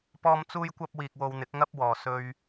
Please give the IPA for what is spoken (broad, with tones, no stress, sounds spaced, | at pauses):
p ɔː˥ m t͡s uː˥ j kʷ ɐ˥ p̚ w iː˧ k̚ w o˧ w n̪ ɪ˨˥ k̚ ŋ ɐ˥ p̚ w ɔː˨˩ s ɵ˧ ɥ